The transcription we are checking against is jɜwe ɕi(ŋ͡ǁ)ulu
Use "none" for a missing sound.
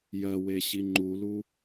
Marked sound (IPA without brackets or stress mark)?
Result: ŋ͡ǃ